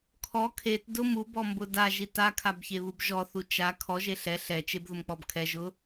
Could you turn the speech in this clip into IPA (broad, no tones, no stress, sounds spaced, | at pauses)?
kʰ ɔ kʰ e t d ʊ m u b ɔ m b ʊ d a ʒ i t a kʰ a b ç e β u b ʒ ɔ θ u t͡ʃ a kʰ ɔ ʒ e ɬ ɛ ɬ ɛ t͡ʃ e b ð ʊ m k͡p ɔ b kʰ ɛ ʒ ʊ